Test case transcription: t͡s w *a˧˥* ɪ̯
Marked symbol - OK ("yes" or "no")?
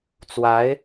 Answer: yes